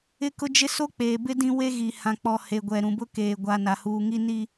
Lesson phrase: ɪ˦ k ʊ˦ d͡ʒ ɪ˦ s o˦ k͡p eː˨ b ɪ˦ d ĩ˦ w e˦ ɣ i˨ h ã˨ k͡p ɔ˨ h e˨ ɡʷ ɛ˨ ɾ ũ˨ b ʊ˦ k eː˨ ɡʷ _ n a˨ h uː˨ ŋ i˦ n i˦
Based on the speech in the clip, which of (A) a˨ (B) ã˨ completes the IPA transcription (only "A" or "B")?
A